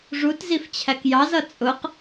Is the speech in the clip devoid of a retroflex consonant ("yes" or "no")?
no